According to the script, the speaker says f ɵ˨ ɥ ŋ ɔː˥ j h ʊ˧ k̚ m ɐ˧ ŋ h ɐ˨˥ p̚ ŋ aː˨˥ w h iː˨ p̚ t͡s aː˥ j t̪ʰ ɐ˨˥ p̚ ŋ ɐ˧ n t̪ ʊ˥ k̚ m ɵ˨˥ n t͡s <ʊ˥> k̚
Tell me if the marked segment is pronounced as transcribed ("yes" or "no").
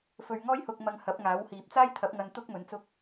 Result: yes